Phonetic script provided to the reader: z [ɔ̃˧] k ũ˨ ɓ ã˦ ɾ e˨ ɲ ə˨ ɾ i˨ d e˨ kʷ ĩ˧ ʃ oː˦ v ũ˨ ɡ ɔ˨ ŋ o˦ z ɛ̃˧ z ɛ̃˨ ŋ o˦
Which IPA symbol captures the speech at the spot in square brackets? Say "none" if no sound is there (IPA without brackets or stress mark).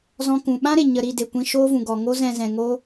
ɔ̃˧